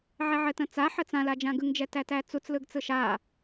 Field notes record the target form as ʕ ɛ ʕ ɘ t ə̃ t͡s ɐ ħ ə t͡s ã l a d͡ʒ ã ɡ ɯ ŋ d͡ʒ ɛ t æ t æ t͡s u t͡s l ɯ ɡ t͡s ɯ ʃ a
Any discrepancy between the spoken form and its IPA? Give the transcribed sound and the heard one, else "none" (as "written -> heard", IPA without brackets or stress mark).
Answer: ɐ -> a